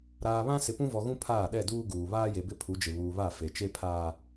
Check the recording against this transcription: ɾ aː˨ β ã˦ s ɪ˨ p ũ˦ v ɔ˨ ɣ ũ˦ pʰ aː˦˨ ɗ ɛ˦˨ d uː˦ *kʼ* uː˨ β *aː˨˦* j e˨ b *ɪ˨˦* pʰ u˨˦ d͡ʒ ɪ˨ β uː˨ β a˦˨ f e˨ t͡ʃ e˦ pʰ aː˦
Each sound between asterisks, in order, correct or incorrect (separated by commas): incorrect, incorrect, incorrect